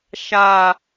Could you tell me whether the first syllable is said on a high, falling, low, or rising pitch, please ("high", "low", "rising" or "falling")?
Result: low